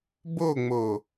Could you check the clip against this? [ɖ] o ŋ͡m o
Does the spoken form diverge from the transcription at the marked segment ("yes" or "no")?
yes